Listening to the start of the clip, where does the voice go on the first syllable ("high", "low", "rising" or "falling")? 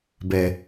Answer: low